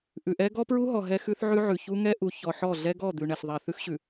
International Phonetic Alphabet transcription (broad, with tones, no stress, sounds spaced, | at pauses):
ʔ ʉ˨ ʔ ɛ˦ ɡ ɔ˦ p ɹ u˦ ɦ ɔ˨ ɦ ɛ˦ x ʉ˦ θ ʕ ʉ˦ ʕ ʉ˨ ç u˦ ŋ ɛ˦ ʔ u˨ ç ɔ˨ ħ ɔ˦˨ ɮ ɛ˦ ɡ ɔ˦˨ d̪ ʉ˨ ɳ ɛ˨ ɬ ðˤ ɛ˨ θ ʉ˦ x ɕ ʉ˨